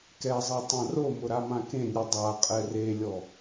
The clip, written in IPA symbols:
k ɛ zˤ ɛ tˤ ã r o m ʊ ɾ a m ã k ẽ nʲ u dˤ a qʼ ɛ r e lʲ ɔ

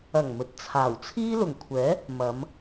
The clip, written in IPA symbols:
ɐ˨˩ ŋ m ɵ˨ t̚ t͡sʰ aː˨˩ w t͡sʰ iː˥ l ʊ˨˩ ŋ kʷʰ ɛː˨˥ | m ɐ˨˧ m

